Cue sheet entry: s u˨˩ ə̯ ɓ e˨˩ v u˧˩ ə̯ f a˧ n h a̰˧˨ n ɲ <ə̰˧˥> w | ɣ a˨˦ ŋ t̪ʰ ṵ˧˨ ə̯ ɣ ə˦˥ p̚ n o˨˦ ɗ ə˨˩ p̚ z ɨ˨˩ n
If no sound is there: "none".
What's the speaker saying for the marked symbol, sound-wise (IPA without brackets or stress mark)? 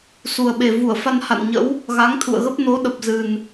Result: ə̰˧˥